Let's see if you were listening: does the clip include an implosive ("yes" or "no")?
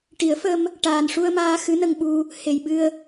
yes